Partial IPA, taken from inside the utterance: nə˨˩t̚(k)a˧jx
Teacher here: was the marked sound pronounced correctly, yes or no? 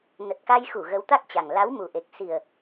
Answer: yes